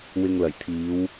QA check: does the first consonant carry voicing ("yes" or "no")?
yes